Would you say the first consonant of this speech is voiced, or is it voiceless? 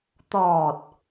voiceless